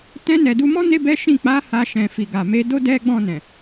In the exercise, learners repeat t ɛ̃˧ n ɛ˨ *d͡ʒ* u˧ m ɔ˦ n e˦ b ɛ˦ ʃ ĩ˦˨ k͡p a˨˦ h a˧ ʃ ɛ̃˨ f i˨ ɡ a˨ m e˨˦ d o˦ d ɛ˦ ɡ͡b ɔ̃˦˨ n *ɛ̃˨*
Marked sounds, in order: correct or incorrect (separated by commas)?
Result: incorrect, correct